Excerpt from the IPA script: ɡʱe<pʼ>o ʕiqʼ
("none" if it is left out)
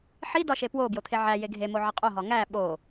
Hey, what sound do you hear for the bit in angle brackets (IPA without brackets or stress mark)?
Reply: m